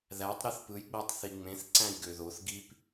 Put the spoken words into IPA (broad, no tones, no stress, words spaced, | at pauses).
ðætˤ ɾiθpɯjɡ͡bætˤ θiŋ͡mẽθ ǀæ̃jɡøðoθ ɡip